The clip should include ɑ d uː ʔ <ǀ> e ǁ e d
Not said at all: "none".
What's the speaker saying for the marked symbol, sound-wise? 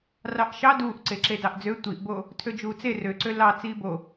ǀ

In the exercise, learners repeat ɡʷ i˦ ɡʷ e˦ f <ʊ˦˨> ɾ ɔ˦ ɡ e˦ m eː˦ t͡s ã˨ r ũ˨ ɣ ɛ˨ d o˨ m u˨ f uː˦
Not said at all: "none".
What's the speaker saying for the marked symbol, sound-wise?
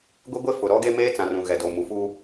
ʊ˨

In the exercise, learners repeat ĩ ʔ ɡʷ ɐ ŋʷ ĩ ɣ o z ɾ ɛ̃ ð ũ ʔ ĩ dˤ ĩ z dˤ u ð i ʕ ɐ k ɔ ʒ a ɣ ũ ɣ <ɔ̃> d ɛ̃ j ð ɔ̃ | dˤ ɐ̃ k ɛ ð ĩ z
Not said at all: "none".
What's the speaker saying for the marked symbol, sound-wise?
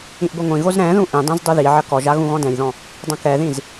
ɔ̃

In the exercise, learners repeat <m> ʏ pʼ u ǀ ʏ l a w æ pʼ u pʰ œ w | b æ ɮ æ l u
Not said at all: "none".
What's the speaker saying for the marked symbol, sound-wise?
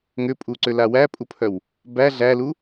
ŋ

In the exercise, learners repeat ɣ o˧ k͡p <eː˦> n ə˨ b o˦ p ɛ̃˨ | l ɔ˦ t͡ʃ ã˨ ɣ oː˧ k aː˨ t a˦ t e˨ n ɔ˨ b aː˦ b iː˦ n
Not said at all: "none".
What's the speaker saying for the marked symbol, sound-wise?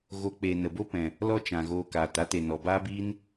eː˨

